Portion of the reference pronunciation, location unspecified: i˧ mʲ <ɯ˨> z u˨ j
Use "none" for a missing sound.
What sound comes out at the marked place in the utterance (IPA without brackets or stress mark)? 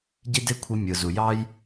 ɯ˨